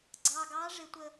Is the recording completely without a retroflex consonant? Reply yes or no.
no